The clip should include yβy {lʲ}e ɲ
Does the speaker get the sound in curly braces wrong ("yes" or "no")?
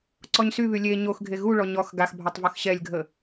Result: no